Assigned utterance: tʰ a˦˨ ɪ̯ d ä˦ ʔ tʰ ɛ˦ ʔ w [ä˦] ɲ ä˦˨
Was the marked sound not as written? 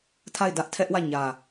yes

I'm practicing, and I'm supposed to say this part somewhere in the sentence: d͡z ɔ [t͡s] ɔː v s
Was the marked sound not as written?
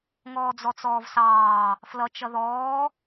no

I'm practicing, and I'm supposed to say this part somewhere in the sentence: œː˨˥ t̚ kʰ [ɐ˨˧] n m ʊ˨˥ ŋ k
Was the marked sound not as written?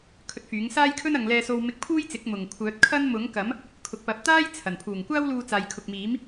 yes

